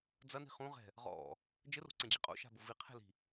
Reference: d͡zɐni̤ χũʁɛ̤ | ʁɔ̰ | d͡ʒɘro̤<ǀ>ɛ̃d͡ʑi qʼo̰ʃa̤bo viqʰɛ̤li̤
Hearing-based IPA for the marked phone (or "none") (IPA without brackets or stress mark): ǀ